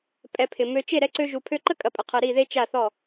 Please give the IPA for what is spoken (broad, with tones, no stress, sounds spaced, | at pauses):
pʼ ɛ˧ pʰ ɪ˨ m ø˧ t͡ʃ e˦˨ ɾ ɛ˧ ǀ ø˧ ʒ u˨ pʰ ø˧ ǃ ə˦ kʼ ɐ˧ pʼ ə˨ qʰ ɐ˧ ɾ i˦˨ ð e˦ t͡ʃ a˦˨ θ ɔ˦˨